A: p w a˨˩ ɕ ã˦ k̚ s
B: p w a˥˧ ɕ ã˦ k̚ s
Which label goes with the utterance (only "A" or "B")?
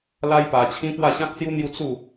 B